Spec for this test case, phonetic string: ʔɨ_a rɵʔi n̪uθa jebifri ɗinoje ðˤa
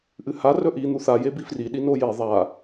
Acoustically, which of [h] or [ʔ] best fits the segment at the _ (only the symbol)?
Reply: h